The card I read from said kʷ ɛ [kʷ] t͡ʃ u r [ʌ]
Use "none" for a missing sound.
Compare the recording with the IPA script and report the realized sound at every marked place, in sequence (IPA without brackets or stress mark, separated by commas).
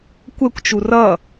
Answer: kʷ, ʌ